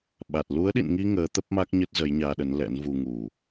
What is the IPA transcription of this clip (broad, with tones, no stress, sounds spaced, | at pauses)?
ɓ a˨˩ t̚ l u˨˦ ə̯ ɗ ḭ˧˨ n ŋ i˧ ŋ əː˨˦ t̪ ə˦˥ p̚ m a˦˥ k̚ ɲ ə˦˥ t̚ z ə˨˦ j ɲ aː˧ ɗ ə˨˦ n l ɛ̰˧˥ n v u˧ ŋ u˨˩